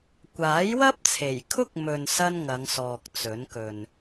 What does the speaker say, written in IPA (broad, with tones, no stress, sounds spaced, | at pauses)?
kʷ aː˨˥ j w ɐ˥ p̚ t͡sʰ e˨˩ j kʰ ʊ˥ k̚ m ɵ˧ n s ɐ˥ n ŋ ɐ˨˧ ŋ s ɔː˨ k̚ t͡s ɵ˨˥ n k ɵ˨ n